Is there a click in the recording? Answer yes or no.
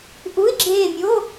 yes